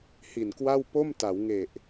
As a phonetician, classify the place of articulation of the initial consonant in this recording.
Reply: glottal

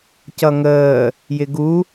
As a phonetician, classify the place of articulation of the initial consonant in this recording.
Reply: palatal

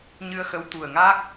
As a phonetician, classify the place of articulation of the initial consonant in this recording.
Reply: palatal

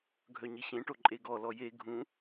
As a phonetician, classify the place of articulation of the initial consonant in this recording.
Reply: velar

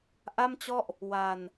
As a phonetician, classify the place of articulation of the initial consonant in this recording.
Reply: glottal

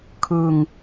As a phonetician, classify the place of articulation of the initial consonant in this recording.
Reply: velar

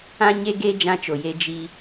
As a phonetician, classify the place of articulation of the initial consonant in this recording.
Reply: palatal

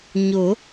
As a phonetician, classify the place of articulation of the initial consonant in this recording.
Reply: palatal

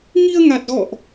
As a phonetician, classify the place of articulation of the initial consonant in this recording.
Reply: velar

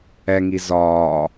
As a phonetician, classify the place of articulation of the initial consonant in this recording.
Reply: velar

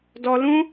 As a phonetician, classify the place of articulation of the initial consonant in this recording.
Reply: alveolar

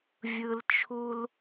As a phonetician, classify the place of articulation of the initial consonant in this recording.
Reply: labial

